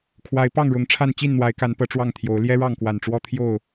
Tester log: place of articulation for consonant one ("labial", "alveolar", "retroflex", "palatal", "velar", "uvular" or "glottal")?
velar